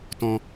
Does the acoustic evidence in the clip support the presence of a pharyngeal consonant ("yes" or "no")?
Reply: no